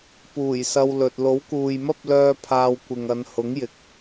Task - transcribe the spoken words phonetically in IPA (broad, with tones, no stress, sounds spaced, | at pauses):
p uː˨˩ j s ɐ˧ w l ɵ˨ t̚ l o˨˥ w k uː˨ j m ɐ˥ p̚ l œː˧ pʰ aː˧ w kʷ ɪ˨ ŋ ɐ˨˧ n h ʊ˨˥ ŋ j ɪ˨ k̚